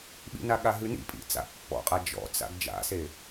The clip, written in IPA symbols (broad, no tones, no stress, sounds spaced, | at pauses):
ɓ ḭ n a ɠ a ɦ ʉ n ḭ pʼ ḭ t͡s a̰ pː ɔ̰ qʼ a d͡ʒ ɔ̰ t͡s a̰ ɡ d͡ʒ a̰ s e